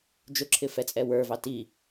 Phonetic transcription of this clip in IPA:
d͡ʒ ʊ ǁʰ ɪ f ɛ t͡sʼ ɛ w ə˞ v ɑ t i

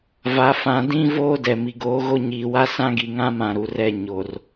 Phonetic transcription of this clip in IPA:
v a˨ f ã˨ d ĩ˦ v oː˦ d ɛ˨ m i˨ ɡ oː˨˦ ɣ o˦ ɲ iː˨ w a˦ s ã˦ ɡ i˨ ŋ ã˦ m ã˦˨ ɾ u˨˦ r ɛ˦˨ ɲ o˨ r

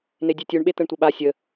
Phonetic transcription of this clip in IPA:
n̪ e dʲ e tʲ u ɳ ɓ e t̪ ə ɳ tʷ ə ɓ a sʲ ə

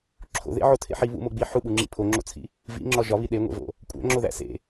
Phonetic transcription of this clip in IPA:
ǁʰ o̰ ð ḛ ʕ o tʰ ḛ ħ i β ṵ m o ɡ͡b i ħ u ɓ u ŋ͡ǁ ḭ pʰ o ŋ͡ǁ o̰ t͡sʰ ḭ | v ḭ ŋ͡ǁ ɒ ʒ ɒ β i ɗ e ŋʷ ḛ v o̰ | kʷʼ æ̰ ŋ͡ǁ o ð æ̰ s ḛ

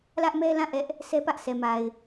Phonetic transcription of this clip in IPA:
l ä˦ ʔ m ɛ˦ l ã˦˨ ʔ ɛ˦ ʔ | s ɛ˦ p ä˦ ʔ s ɛ˨ m a˨ ɪ̯

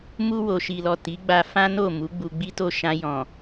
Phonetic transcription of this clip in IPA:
m u˧ w o˨ ʃ i˨ l ɔ˨ t i˨˦ ɡ͡b a˧ f ã˦ n o˦˨ m u˨˦ ɡ͡b u˧ ɡ͡b i˦ t o˦˨ ʃ ã˧ j ɔ̃˨

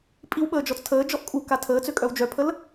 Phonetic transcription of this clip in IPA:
pʼ i w ɓ əː d͡ʒ ɔ t͡s tʰ əː d͡ʒ ɔ ʔ kʼ u k a tʰ əː t͡s ø kʼ œ w d͡ʒ œ pʰ ə l

